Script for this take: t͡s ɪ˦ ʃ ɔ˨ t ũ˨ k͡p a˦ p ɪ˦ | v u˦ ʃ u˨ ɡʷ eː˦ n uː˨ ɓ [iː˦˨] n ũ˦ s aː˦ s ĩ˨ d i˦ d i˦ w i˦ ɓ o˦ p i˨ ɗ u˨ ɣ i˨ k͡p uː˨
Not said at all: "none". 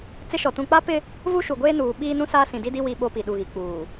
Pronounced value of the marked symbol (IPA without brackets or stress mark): iː˦